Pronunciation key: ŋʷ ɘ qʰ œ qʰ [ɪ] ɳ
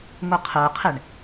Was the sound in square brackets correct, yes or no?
yes